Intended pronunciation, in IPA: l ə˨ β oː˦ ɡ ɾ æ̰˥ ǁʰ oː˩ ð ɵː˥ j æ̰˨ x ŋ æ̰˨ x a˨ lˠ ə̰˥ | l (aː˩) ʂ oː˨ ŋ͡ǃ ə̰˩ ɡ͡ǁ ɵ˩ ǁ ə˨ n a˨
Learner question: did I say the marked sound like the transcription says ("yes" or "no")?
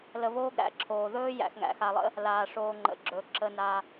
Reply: yes